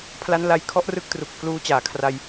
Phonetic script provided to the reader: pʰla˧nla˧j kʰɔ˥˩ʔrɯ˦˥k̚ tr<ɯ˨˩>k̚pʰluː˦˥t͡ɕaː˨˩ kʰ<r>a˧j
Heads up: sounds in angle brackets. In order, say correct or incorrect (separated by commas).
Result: incorrect, correct